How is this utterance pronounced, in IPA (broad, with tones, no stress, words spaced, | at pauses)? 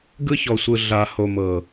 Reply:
ɡɯ˦çɔ˨sʷɯ˨ ɮa˨ ho˨mɤ˨